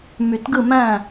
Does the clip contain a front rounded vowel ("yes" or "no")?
yes